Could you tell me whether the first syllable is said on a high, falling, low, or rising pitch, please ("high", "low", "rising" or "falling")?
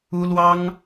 high